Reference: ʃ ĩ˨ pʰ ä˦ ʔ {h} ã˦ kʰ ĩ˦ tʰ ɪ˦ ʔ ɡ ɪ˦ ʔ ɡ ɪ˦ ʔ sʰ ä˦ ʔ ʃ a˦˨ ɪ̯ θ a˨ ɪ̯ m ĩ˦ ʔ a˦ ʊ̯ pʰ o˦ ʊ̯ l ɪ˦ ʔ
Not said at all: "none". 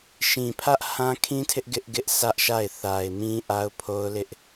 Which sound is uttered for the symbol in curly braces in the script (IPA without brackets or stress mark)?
h